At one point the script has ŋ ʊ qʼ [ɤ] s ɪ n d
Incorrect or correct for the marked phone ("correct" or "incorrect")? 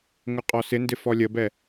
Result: incorrect